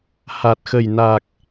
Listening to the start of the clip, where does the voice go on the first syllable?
low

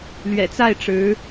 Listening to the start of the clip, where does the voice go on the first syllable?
low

